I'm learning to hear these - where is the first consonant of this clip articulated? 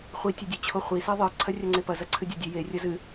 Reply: uvula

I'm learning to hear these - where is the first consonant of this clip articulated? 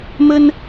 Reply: lips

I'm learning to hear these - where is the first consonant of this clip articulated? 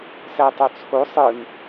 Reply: tongue tip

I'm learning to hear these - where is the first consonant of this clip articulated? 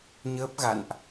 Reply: palate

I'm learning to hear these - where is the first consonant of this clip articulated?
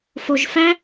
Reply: lips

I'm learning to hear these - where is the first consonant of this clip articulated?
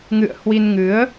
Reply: velum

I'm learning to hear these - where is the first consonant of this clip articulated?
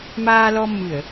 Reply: lips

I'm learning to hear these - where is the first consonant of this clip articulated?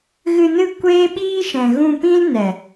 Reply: velum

